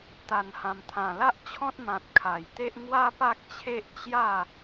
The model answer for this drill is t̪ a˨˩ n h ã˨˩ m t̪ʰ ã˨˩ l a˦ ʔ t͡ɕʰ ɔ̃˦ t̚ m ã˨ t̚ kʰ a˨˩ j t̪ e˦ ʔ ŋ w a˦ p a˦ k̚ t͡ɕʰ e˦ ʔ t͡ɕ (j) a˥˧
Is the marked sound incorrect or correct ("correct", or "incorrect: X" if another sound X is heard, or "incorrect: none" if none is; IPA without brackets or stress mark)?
correct